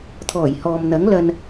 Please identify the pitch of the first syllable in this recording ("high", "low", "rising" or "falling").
low